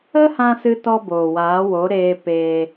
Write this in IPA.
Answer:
ə˦ h ã˧ s ɨ˦ t ɔ˦ b oː˨ w aː˨˦ w o˨˦ ɾ eː˧ p eː˧

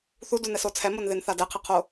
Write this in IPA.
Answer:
θ u d u n ɛ s o t͡sʰ ɛ m o n ð e n θ a d ɛ qʰ e qʰ o

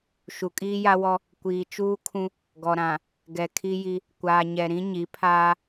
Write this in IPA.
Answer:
ʃ u˨ kʼ iː˦ j a˦ w ɔ˦ | kʷ iː˨ t͡ʃ uː˦ kʰ ũ˦ | ɡ ɔ˨ ɾ ã˨ | ɡ ɛ˨ kʰ i˦ j i˦ | kʷ aː˨ ɲ ɛ˨ ɾ ĩ˦ ɲ i˨˦ pʰ aː˦

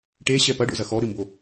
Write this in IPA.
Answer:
ʈ e ɕ ɛ p ɐ ɖ o̰ z ɐ x ɔ ɾ ɨ m b o

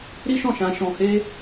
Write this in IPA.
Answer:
ɾ i˦ ʃ ɔ̃˦˨ ʃ ã˧ ʃ ɔ̃˧ h e˦

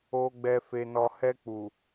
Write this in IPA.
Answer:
o˨ ɡ͡b ɛ˨ f e˨ n ɔ˨ h ɛ˧ k͡p u˨

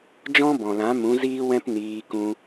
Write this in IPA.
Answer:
d͡ʒ ɔ̃˦ b ɔ̃˨ l ã˨˦ m ũ˨˦ z iː˦ w ɛ̃˦ p n iː˧ k ũ˧

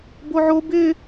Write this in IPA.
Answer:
b o ʕ o b ɪ

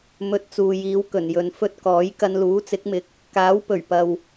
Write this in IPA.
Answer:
m ɵ˧ t̚ t͡s uː˨ j iː˨˧ w k ɵ˨˩ n j ɵ˨ n f ɵ˥ t̚ k ɔː˨˥ j k ɐ˧ n l uː˨˥ t͡s ɪ˨˥ k̚ m ɪ˨˥ k̚ | k aː˨˥ w p ɵ˨˩ ɥ p ɐ˨ w

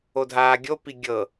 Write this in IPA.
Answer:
o dʱ aː ɡʲ o p i ɡʲ ɤ

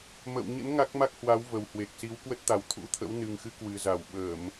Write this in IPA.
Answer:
m ə̰ː˧˨ w ɲ ə̰˧˥ n ŋ a˦˥ k̚ m a˦˥ k̚ h w a˨˦ w v ə˨˩ w h w e˨˩ k̚ s i˨˦ w k w ə˦˥ t̚ t̪ a˨˩ w t̪ʰ ṵ˧˥ t̪ʰ ə̰˧˥ w n ɨ˨˩ ŋ x ɨ˨˦ k w ɨ˨˩ z a˧˩ w ɓ əː˧˩˨ m

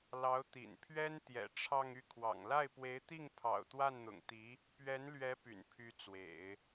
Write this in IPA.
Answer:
l ɑ˧˥ ʊ̯ t̪ ḭ˨˩ n pʰ ɥ ɛ˥ n t̪ j ɛ̰˨˩ ʈ͡ʂʰ ɑ˥˧ ŋ y˥˩ kʰ w ɑ̰˨˩ ŋ l a˥˩ ɪ̯ p w e˧˥ ɪ̯ t̪ i˥˩ ŋ pʰ ɑ̰˨˩ ʊ̯ t̪ w a˥˩ n n̪ ʊ̰˨˩ ŋ t̪ i˧˥ | p ɥ ɛ˧˥ n l ɥ ɛ˧˥ p y̰˨˩ n pʰ y˧˥ t͡s w ḛ˨˩˦ ɪ̯

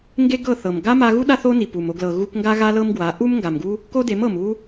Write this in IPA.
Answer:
ŋ ɡ e˦ ɡ ɤ˦˨ θ ɤ˨ m ɡ a˦ m a˧ ɣ u˦ ɗ a˦ θ o˦ n i˨ p u˨ m o˧ ɡ l ɤ˨ ɣ u˧ k ŋ ɡ a˦ ɣ a˦ l ɤ˦ m ɡ w a˨˦ ʔ u˦ m ŋ ɡ a˨ m ɡ u˦ | k o˦ d e˨˦ m ɤ˨ m u˦

